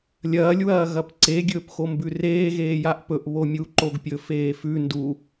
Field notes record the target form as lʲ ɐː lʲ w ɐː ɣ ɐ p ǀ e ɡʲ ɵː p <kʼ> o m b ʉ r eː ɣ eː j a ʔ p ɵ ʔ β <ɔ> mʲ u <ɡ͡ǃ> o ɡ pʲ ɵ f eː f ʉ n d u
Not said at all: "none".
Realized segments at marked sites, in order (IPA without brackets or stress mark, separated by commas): x, o, ǃ